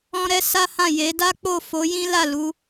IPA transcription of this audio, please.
ɔ̃˦ ɾ ɛ˦ s a˦ h ã˦˨ j e˨˦ d a˦ k͡p o˦˨ f o˨˦ j ĩ˦ l a˦˨ l u˨˦

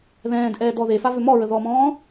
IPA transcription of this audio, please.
ð ɛ̃ː d ʔ ɛː d ɔ ð e f a v ʏ m ɔ ɹ ə ð ɔ m ɔ̃ː

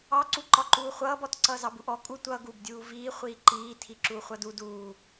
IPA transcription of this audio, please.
ɑ ǀ u ǃ ɒ ǃ uː χʷ ʌː b ɔ t ǀ ʌː z ɑ b u ʔ ɔ kʼ u tʷ ʌː ɡ uː b dʲ uː v iː χʷ iː ǃ iː tʰ i ǁ uː χʷ ʌ d u d uː

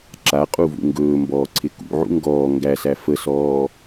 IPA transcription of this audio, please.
ǁ a qʼ u v ṵ ŋ ɡ ɵː m b ɔː ǀʰ ɪ k ṵ ʕ ṵ ŋ ɡ ɔː ŋ ɡ æ s æ f ə s ɔː

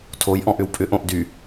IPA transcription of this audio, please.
tʰ o j ʔ ɔ̃ ʔ ʏ w pʼ ʏ ʔ õ ʔ d y

